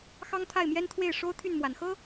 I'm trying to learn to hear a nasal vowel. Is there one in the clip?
no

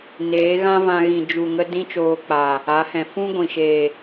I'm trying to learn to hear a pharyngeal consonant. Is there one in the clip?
no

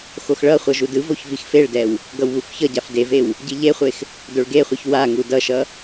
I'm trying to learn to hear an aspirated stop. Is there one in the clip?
no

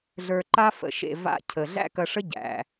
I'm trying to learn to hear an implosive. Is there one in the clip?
no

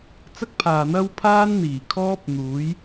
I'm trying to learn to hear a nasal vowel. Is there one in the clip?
no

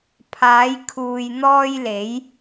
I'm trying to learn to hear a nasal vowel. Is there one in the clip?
no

